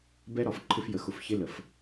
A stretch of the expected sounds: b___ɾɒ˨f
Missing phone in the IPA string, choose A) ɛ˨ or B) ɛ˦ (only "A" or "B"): B